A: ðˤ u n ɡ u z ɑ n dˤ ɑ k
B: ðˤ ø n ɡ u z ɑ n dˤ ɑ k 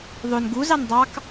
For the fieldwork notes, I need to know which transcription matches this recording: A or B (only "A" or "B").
B